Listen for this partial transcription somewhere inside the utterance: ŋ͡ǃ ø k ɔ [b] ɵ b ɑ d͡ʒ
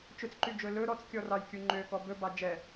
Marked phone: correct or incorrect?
correct